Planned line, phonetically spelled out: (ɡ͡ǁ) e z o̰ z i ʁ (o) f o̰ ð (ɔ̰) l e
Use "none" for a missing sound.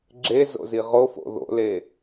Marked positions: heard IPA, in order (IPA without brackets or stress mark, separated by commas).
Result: ɡ͡ǁ, o, o̰